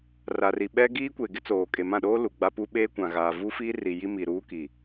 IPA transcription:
r a˨ r i˨ ɓ ɛ˦ ɡ iː˦ kʷ e˨ ɡ ɪ˦ t͡s oː˨ kʼ e˨ m ã˦˨ ɗ oː˦ l u˨ ɡ͡b a˦ p u˦ ɓ eː˦ kʷ ã˨ ɣ aː˨ v u˦ f iː˦ r i˨ j i˦ m i˨ ɾ uː˦ k i˨

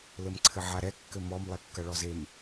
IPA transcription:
l ɘ m ǀʰ ɘ ʕ a ɾ ɛ kː ɘ m ɔ m lˠ e kː ɐ ɭ ɔ z e m

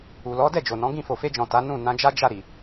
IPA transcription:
u˨ l ɔ˨˦ d ɛ˦˨ d͡ʒ o˨ n ɔ̃˨˦ ɡ ĩ˦˨ f o˨ f e˧ d͡ʒ ɔ̃˨ t a˨˦ n ũ˦˨ n ã˧ d͡ʒ a˦ d͡ʒ a˦˨ ɾ i˨

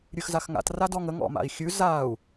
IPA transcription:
ɾʲ ʉ x z a x ŋ a̰ t r a d ɔ ŋ ə ŋ ɔ̰ m a̰ i̯ xʲ ʉ z a u̯

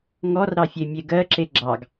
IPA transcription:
ŋ ɔ r ɾ ɑ fʲ e mʲ e ɡ ɜ ǁ e ɡ͡ǁ ɑ ɡ

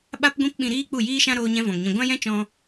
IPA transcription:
ɓ a˦ p ɡʷ ĩ˦ p ɓ ĩ˧ ɾ iː˦ k͡p u˦˨ j iː˦ ʃ ã˦ ɾ oː˦ ɲ ɛ̃˦ v ɔ̃˨ ŋ ɲ ĩ˧ ɡʷ ã˦ j ɛ̃˦ t͡ʃ ɔ̃˧

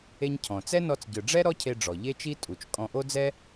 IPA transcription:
e˧ ɲ cʰ ɔ̃˩ t͡s ɛ˥ n ɔ˧ t͡s ɟ ɯ˩ ɖ͡ʐ ɛ˥ ɾ ɔ˥ cʰ e˧ ɖ͡ʐ ɔ˩ ʎ e˥ t͡ʃ i˥ tʼ u˩ t͡ʃ kʼ ɔ̃˧ ʔ o˥ d͡z ɛ˥

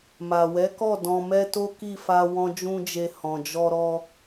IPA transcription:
m a˨ w ɛ˨˦ k ɔ˦˨ d ɔ̃˨ m ɛ˧ t o˦ k i˦˨ f a˧ w ɔ̃˦ d͡ʒ ũ˦ d͡ʒ e˧ h ɔ̃˨ d͡ʒ ɔ˧ ɾ ɔ˧

